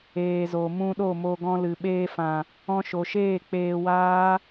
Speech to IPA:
eː˨ z o˨ m ũ˧ ɗ o˦˨ m o˧ ɡ ɔ̃˧ l ɨ˨ ɓ eː˧ f ã˨ | ɔ̃˧ ʃ o˨ ʃ eː˦˨ k͡p eː˧ w aː˦

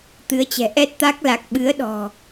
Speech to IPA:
t̪ ɨ˨˦ ə̯ t͡ɕ ɛ̤˨˩ ʔ ɛ˦˥ t̚ t̪ a˦˥ k̚ l a˨˩ k̚ ɓ ɨ˨˦ ə̯ ɗ ɔ̤˨˩

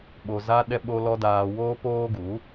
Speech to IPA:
ɓ o˨ z a˧ ɗ ɛ˧ ɓ o˧ l ɔ˧ d aː˨ w oː˧ p oː˦ ɡ u˨˦

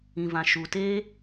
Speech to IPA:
ĩ˨ v ã˨ ʃ u˨ t e˦

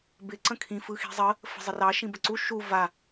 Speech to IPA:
b ɪ ǀ ə̃ kʰ ĩ f ɯ x i̤ zˤ ə | f ə̤ zˤ ɪ r ɑ ʃ ĩ b ə ǀ u ʃ u v a

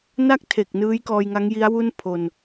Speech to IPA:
n a˥˩ k̚ tʰ e˨˩ k̚ n ɯː˦˥ j k ɔː˧ j ŋ a˦˥ ŋ j i˦˥ a̯ w u˥˩ n pʰ o˧ n

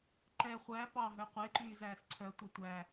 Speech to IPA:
ǃ ɛ χʷ æ p ɑ ɦ œ qʷ e ǃ yː z æː s ǀʰ œ tʷ ɑ tʷ æ

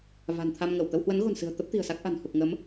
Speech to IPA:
v a̤˨˩ n t̪ʰ a˧ m ŋ ə˧˩ w t̪ ə˧ w h w ə˨˦ n ɣ o̤˨˩ n s ɨ̤˨˩ ə̯ t̪ ə˦˥ p̚ t̪ i̤˨˩ ə̯ s a˦˥ k̚ ʔ a̤˨˩ n h u˨˩ k̚ ŋ ə˨˦ m

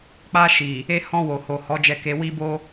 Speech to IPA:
k͡p a˧ ʃ i˨ | e˧ h ɔ̃˧ w o˨ h o˨ h ɔ˨˦ d͡ʒ ɛ˧ k e˧ w i˧ b o˧

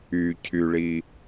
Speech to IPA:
y cʰ y ɭ i

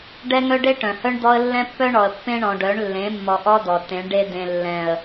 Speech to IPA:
ɖ ɛ˦ ŋ œ˦ ɖ e˦ ʈ œ̃˨ h œ˦ ɳ d̪ ɔ˦ ə̯ lː ɛ̃˦ pː œ˦ ɳ ɔ˨ ə̯ pː ẽ˦ ɳ ɔ̃˨ ɖ œ˨˦ ɳ lː ẽ˨˦ mː ɔ˨ ʔ ɔ˦ d̪ ɔ˨ t ẽ˨˦ ɳ ɖ e˦ d̪ ẽ˨ lː ɛ̃˨ ə̯

